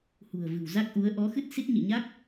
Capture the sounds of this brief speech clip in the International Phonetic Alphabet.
h ṳ˨˩ ə̯ v ɨ̤˨˩ w z a˦˥ k̚ ʔ u˨˦ ə̯ ʔ ɔ˨˦ x ɨ˦˥ t̚ s i˦˥ t̚ ɲ ḭ˧˨ ɲ a˦˥ k̚

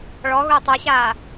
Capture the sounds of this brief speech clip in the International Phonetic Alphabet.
ɭ ɔ ɣ ʊ i̯ tˤ ɛ ɕ aː

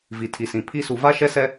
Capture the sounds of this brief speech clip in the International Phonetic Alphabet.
v i˨ tʰ i˨ s ĩ˨ pʰ i˦ s u˨ v a˦ ʃ ɛ˦ s ɛ˦

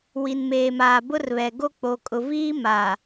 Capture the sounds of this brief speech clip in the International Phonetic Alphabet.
w i˨ n m eː˨ m aː˨ b ʊ˦ r β ɛ˨ ɡ o˦ k͡p o˨ kʼ ʊ˨ v iː˦ m a˨

